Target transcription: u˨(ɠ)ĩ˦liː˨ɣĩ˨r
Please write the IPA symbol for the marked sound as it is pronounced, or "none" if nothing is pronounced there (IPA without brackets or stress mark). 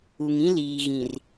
ŋ